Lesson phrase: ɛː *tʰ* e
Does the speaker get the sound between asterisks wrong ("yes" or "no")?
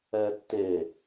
yes